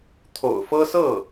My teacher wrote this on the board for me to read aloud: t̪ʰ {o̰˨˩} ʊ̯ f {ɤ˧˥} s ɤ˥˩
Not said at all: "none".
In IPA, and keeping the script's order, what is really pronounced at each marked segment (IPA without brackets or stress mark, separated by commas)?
o̰˨˩, ɤ˥